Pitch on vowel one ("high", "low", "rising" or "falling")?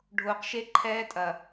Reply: low